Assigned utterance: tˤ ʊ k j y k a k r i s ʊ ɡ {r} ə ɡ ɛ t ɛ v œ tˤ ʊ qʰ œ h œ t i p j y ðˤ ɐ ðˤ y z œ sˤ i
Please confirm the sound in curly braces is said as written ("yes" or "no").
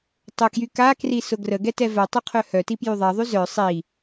yes